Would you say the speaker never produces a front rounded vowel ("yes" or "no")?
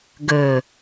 yes